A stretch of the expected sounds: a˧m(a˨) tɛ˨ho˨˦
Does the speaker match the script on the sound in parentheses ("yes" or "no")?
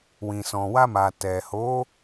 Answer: yes